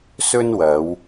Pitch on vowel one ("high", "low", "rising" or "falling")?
high